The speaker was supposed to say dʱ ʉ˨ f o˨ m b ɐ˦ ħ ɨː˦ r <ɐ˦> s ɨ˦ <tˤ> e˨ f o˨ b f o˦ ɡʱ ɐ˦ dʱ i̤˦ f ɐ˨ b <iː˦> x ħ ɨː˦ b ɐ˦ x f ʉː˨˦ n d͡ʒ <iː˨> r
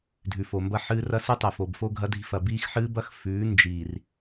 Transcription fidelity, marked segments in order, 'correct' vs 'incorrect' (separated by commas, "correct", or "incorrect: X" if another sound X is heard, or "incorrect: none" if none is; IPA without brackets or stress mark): correct, correct, correct, correct